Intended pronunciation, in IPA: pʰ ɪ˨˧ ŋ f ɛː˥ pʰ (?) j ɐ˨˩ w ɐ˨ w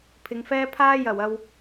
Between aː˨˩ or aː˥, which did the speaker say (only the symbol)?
aː˥